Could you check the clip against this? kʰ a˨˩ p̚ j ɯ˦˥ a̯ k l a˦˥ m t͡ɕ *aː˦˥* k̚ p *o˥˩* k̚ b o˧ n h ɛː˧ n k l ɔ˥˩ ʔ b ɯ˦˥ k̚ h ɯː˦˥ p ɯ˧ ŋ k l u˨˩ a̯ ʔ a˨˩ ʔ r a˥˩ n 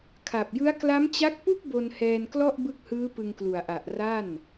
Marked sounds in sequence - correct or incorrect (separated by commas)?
incorrect, incorrect